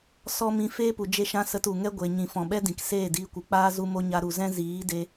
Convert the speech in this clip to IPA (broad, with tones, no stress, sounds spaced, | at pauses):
s ɔ˦ m ĩ˧ f eː˦ p u˨ d͡ʒ e˦ ʃ ã˦ s ə˧ t u˨ ŋ ɛ˦ ɡʷ e˨ ɲ ĩ˨ f ɔ̃˨ ɓ ɛ˦ d ĩ˨ k s eː˦˨ d iː˧ kʷ ɨ˨ k͡p aː˦ z u˦ m o˦ ɲ a˧ ɾ u˨ z ɛ̃˦ z iː˨˦ d e˧